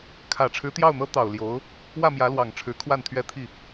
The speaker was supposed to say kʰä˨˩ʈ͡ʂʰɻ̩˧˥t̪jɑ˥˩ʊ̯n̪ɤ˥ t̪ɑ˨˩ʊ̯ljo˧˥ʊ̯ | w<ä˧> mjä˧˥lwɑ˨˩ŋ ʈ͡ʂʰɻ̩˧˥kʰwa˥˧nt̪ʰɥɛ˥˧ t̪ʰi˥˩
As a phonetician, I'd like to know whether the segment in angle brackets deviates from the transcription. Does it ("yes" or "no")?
yes